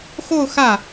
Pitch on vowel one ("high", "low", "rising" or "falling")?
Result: falling